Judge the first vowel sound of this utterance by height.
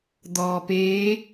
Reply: mid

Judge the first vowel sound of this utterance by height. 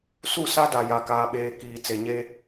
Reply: high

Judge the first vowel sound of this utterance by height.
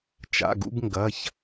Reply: low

